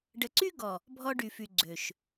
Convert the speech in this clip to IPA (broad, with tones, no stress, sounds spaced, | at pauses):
ɖ ə˨ ǀ y˦ ɡ ɔ˨ | bʱ ɔ˦ ɖ y˨ f y˨ ɡ͡ǀ ø˨ ʃ